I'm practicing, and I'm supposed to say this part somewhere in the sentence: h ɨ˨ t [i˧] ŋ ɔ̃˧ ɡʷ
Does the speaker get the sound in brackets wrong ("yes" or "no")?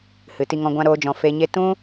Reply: no